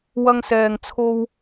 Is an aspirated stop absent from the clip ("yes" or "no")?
no